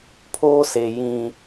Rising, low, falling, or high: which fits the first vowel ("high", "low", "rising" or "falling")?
high